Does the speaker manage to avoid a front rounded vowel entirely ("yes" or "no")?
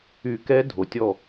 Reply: no